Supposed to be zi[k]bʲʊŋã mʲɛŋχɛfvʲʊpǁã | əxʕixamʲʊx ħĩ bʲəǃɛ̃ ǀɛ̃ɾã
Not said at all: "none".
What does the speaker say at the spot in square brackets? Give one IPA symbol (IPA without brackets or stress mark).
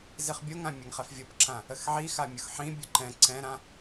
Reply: χ